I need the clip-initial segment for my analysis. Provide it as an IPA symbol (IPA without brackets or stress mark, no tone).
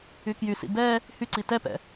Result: y